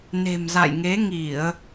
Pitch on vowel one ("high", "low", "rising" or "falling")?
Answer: low